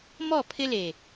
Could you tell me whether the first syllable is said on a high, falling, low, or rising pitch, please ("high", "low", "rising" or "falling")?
falling